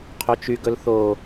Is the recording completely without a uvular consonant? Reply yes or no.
no